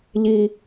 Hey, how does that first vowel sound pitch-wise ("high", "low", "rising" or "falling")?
low